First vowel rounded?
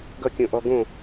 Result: no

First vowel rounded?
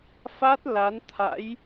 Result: no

